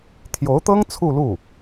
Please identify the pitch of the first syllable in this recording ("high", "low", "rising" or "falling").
rising